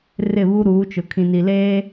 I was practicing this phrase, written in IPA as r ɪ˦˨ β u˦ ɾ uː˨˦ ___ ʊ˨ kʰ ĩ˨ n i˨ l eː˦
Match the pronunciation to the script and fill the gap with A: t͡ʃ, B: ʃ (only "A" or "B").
A